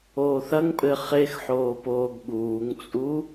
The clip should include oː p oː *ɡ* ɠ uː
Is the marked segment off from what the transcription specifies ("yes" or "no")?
no